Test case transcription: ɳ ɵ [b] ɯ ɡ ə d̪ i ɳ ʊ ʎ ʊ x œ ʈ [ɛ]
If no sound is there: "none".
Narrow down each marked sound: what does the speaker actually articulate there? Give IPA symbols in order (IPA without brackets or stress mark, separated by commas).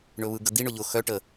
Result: β, ə